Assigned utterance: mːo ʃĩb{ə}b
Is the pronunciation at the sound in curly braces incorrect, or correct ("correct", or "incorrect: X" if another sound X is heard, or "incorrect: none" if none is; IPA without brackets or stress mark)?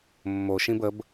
correct